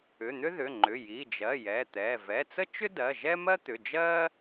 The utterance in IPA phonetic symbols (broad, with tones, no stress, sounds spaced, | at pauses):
ʏ˩˧˩ n̪ ʏ˥ ð ʏ˩˧˩ ŋ͡ǃ ʏ˩˧˩ j i˩˧˩ d͡ʒ ɜ˩˧˩ j ɛ˩˧˩ t̪ ɛ˩˧˩ v ɛ˩˧˩ t͡s ə˥ t͡ʃ ʏ˥ d ɜ˩˧˩ ʒ ɛ˥ m ɜ˥ t̪ ʏ˩˧˩ d͡ʒ ɜ˥